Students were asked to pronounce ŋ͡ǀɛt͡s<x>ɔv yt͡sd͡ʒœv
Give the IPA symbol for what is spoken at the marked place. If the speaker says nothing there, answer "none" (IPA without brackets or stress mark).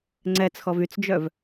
x